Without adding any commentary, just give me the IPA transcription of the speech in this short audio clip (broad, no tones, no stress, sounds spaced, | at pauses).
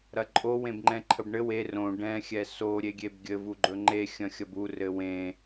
ɾ ɐ ǃʼ o w ẽ b ŋ͡ǃ ɛ̃ ǃʰ ə b ɳ ɘ w e r õ ɖ ɛ̃ xʲ ɛ s o ɾʲ e ɡʲ e b ɡʲ ɘ v u ɡ͡ǃ ɵ ŋ͡ǃ e xʲ ɐ̃ xʲ ɐ b u r ɘ w ẽ